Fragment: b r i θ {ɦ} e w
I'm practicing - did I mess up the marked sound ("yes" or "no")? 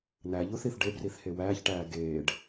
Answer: yes